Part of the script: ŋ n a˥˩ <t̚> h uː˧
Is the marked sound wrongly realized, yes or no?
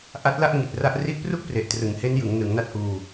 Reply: no